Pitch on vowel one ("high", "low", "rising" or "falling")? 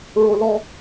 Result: high